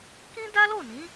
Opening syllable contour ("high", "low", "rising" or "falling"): high